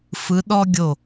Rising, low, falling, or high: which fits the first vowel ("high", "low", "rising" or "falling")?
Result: rising